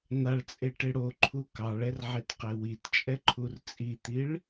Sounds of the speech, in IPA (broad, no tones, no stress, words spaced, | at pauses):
n̪aɭt͡sʼeʈe ɽoǃʰu kɑɭɛrʕetqe witt͡ʃʼɛǃʰur t͡sʼit̪iɭ